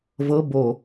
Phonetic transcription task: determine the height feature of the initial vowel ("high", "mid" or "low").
mid